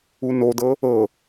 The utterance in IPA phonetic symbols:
u n o d ɤ | ɤ

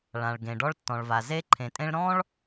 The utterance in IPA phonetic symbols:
ɭ ã˩ ɭ ɡ ẽ˩ ɖ ɔ˧ ɭ tː ɔ̃˩ ɭ v a˩ z e˧ ǃʰ ẽ˩ tʼ ẽ˧ ɭ ɾ ɔ̃˥ ɭ

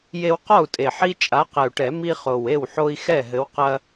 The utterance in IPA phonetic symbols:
j e˦ w q ɔ˥˩ u̯ tʼ e˨˩ ħ i˦ t͡ʃʼ a˨˦ q ɛ˨˩ u̯ ʈ ɛ˨˩˦ m i˦ χ o˨˩ w e˥˩ w ħ o˦ i̯ x ɛ˥˩ ɦ ɘ˨˦ w q ɐ˦

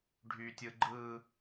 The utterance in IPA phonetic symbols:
ɖʱ y tʲ ɯ ɡ͡ǃ ɯ

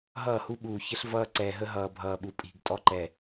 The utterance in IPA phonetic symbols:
ɦ ʌː˦˨ h u˦ ɓ uː˨ ç ə˦ ɬ v ʌː˦ ǀ ɛː˨ ɦ ə˦ ɦ ʌː˨ bʱ ʌː˨ ɓ u˨ pʼ i̤˨ ɡ tʼ ɔ˦ ǃ ɛ˨

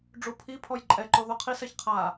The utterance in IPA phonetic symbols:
ɖ͡ʐ u pʰ i pʰ ɔ j ǃʼ ɛ ǃ o ð o qʰ i s ɛ ç qʰ a

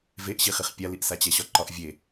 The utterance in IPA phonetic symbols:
v e ʔ ɕ i χ i χ pʲ a l i ʔ s a t͡ɕ ɛ ɕ ɒ ǃ ɒ ʔ vʲ e

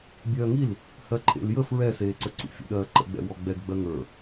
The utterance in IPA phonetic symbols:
bʲ ɜː ŋ i l | h ɜ ǃʰ ḛ l j ə f ɹ ɛ s eː ǀ ə ǀ ḭ fʲ ə̰ ɗ ɜː ǃ ə̰ ɡ͡b ɛ̰ w ɔ ɡ͡b ɛ ɡ ɡ͡b ɜ ŋ ə˞

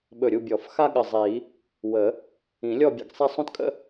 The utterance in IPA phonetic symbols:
ɓ ɵ˧˩ ɾʲ u˥˧ bʲ ɔ˨˩˦ f x a˥ ɠ ə˧˩ zˤ i˨˩˦ | w ə˨˩˦ | ĩ˨˩˦ lʲ ɔ˥˧ bʲ ə̰˧˩ ɡ sˤ ɛ˥˧ sˤ ũ˥ t kʼ ə̰˥

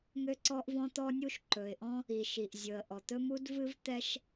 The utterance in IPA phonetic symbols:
ŋ ø˥ ǀ ɔ˥ ʔ v ɔ̃˥ t̪ ɔ˥ nʲ u˥ ʃ ǃ ɵ˩ ɪ̯ ʔ ɔ̃˥ | i˩ ʃ i˩ ʔ zʲ ɵ˩ ə̯ ʔ ɔ˩ t̪ ɵ˥ m u˥ d v ɨ˥ v t̪ ɛ˥ ʃ

